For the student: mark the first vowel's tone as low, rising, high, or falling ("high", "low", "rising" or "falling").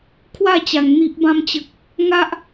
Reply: falling